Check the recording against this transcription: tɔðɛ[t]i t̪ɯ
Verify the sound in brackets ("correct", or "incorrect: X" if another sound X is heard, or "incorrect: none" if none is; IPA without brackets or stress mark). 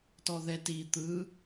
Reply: correct